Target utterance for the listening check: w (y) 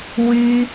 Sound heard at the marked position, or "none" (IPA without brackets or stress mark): y